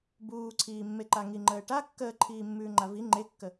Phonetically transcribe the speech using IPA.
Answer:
buːǀʰiːmːeǃa ŋiŋ͡ǃəːʈa kːəːǃʰiːmːʉːŋ͡ǃa vi ŋ͡ǃekːə

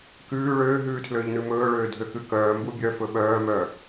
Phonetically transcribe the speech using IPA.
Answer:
kʉː ɭøːɦʉːtʰløːʎ nʉmɵːɭøː dʱøkʉkœː mbubʲœfɵ ɓœːmœ

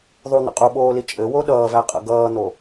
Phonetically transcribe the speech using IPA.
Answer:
ðˤun̪ə̰ qʼuɓoːli t͡ʃʼɘwo ɗʌːvæqʼə̰ ɡʌːn̪o

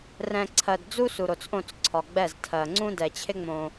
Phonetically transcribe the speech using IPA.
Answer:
rɛ̃˨ ǀʰɜ˨d d͡zu˦su˨ɾo˨t͡sʔõ˦˨t͡s ǀʰɒ˨ɡ͡bɛ˦˨z tʰɜ˨ŋ͡ǀũ˦ dɛ˨t͡ɕʰɪ˦ ŋ͡mõ˦

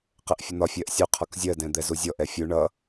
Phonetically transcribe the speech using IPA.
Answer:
qɛʔfʲʊn̪ɒ fʲɜʔsʲu qʰɒkzʲɜ dɛ̃d̪ɛzuzʲɔ ʔɛfʲu ɳʌ

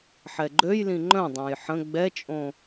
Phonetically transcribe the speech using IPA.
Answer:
ħɛɡ͡ǃøjlĩ ŋ͡ǃœ̃dˤãj ħə̃ ɡ͡bɛt͡ʃʼõ

